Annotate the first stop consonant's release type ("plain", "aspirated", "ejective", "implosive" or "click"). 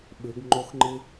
implosive